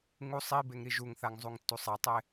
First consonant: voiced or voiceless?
voiced